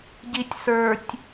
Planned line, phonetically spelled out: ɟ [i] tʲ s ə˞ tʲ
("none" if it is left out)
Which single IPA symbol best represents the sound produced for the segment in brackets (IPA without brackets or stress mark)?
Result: i